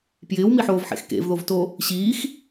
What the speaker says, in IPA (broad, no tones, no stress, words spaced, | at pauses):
pjɪːwmiħoːvħḛx kḛvðovto | ɕiːx